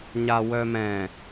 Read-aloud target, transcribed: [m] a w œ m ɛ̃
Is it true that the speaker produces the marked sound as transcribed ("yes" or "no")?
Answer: no